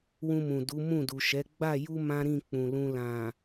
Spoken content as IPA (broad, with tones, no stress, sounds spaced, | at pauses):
w ũ˧ m ũ˨ d u˨˦ m ũ˦˨ d u˨ ʃ ɛ˨˦ ɡ͡b a˦˨ j u˧ m ã˦ ɾ ĩ˦˨ k͡p ũ˨ l ũ˧ l ã˨